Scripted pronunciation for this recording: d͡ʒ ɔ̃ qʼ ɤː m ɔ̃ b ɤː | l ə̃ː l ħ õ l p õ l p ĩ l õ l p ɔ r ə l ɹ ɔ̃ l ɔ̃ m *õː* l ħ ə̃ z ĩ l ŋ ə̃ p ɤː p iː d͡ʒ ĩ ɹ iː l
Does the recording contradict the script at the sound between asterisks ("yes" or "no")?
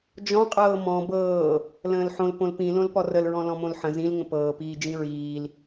yes